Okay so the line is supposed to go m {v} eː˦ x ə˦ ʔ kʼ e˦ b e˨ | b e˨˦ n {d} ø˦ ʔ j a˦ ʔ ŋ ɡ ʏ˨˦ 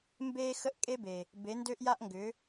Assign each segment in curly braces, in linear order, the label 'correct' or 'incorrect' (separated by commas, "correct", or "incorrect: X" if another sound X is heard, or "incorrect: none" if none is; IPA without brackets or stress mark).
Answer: incorrect: b, correct